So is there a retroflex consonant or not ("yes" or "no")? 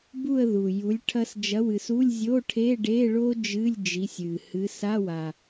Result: yes